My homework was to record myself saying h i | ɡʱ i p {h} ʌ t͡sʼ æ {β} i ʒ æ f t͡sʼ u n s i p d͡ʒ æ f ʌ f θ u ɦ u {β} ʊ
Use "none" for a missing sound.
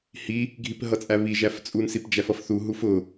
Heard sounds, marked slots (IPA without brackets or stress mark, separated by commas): ɦ, β, f